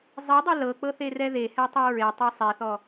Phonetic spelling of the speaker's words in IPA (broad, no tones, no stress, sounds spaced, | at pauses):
zˤ e dˤ e l ɤ k͡p ɤ θ e r ɛ ð e h ɛ tˤ e ɹ e tˤ ɤ sˤ e θ ɔ